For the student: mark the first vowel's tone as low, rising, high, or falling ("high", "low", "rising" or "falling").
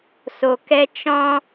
low